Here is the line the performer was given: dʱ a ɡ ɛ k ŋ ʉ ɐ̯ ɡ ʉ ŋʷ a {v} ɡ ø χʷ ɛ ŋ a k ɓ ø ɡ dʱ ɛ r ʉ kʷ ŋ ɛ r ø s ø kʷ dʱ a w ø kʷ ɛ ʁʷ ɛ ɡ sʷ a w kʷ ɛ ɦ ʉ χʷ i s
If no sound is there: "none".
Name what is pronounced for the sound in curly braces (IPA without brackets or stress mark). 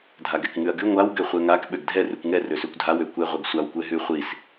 w